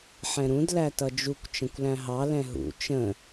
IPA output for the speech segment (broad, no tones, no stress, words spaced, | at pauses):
ħɛ̃ɾũd lætʌd͡ʒukʷ t͡ʃə̃kʷlæ̃ɦɑ lɛ̃ɦṵ t͡ʃə̃